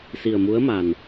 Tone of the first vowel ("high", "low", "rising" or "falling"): low